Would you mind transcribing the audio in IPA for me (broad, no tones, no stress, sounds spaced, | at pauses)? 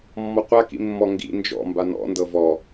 mː ɔ qʷ a k ḭ mː ɔ ŋ ɡ ḭ n d͡ʒ ɔ̰ m b a n ɔ̰ n d ɤ v ɔ